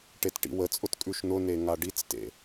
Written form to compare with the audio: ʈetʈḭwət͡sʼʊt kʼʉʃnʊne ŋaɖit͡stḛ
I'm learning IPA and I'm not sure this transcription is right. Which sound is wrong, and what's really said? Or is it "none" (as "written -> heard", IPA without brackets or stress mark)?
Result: none